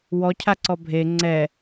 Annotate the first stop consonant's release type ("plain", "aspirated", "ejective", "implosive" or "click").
aspirated